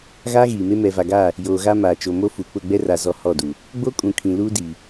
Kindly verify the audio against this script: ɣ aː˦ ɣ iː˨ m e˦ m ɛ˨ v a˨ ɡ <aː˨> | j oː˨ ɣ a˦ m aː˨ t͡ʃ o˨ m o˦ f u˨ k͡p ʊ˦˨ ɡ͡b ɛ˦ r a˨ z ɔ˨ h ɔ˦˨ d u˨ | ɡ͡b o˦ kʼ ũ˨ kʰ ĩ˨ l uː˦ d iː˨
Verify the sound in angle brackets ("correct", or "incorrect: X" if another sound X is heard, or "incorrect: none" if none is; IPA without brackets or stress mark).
incorrect: aː˦˨